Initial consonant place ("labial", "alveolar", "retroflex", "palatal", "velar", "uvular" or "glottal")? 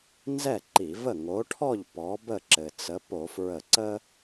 alveolar